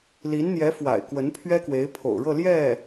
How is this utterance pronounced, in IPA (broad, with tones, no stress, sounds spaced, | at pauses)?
l i˧˥ n n̪ j ɛ˧˥ f w a̰˨˩ ɪ̯ k w ə˧˥ n pʰ ɥ ɛ˥ k w e˧˥ ɪ̯ pʰ o̰˨˩ ʊ̯ ɻ ɤ˥˧ l j ɛ˥˩